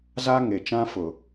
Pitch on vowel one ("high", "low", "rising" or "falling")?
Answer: high